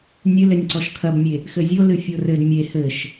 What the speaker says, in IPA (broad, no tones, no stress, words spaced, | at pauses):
nʲɨlɘnʲ ǀɔʃkʰɐbmʲe | xɘzʲo lɨfʲorɘd mʲe hɘʃ